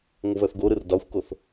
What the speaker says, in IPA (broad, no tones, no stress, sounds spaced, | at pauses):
ŋʷ ə β œ θ ɡ o ɾ ɯ r d ɒ xʷ k o θ